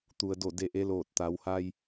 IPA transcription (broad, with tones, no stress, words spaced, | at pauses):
t̪u˩ə̯do˧˩ de˧ʔe˧˥ loː˧˩t̚t̪a˩˧wha˧j